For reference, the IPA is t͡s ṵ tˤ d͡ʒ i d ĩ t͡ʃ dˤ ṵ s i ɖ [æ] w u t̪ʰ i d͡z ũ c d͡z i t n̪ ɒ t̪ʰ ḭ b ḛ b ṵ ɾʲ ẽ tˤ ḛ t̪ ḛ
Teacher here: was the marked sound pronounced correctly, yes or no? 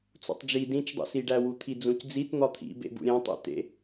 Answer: yes